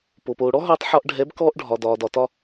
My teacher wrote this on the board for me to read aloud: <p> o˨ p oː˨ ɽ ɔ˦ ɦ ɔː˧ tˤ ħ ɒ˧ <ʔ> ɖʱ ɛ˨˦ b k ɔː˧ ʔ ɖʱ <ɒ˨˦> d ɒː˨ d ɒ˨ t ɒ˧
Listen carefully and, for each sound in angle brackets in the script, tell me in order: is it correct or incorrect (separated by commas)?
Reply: correct, correct, incorrect